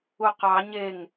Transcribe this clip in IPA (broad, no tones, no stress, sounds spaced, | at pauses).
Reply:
u q ɑ ɲ e ŋ